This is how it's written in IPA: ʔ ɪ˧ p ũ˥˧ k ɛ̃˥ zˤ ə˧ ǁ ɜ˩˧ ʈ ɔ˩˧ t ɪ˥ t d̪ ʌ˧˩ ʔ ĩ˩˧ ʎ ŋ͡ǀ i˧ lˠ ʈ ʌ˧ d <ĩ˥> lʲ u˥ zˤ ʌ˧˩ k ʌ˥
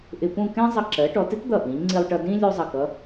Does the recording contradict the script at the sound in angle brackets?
no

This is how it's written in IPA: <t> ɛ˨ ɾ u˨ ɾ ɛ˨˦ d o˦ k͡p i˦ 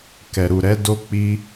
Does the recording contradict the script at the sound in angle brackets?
yes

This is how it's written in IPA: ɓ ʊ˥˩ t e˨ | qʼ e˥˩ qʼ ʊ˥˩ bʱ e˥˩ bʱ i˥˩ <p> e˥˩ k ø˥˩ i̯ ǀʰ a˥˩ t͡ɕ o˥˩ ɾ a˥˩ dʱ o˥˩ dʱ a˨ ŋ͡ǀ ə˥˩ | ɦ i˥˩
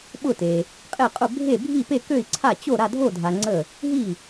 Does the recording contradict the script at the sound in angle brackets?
no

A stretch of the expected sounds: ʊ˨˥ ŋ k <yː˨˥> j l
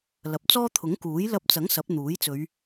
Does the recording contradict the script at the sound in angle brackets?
yes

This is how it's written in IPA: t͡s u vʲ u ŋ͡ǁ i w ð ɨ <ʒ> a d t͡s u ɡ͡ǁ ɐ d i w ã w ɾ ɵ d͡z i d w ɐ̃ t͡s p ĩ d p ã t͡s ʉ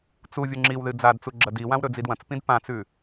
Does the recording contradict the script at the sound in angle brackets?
yes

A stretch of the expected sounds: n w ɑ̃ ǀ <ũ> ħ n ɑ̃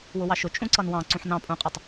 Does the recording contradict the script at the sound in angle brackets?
no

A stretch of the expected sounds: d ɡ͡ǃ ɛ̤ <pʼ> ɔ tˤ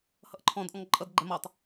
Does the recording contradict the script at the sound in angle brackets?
yes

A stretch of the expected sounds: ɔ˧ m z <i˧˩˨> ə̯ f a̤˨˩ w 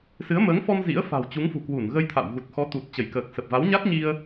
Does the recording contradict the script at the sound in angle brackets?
yes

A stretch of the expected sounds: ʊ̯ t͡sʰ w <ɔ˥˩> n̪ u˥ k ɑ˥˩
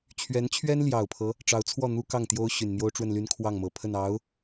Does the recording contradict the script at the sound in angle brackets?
no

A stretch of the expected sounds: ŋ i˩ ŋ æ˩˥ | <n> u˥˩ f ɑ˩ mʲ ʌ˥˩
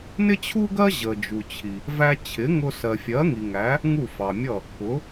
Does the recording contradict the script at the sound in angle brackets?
yes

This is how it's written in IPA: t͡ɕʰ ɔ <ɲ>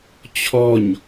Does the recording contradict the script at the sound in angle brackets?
no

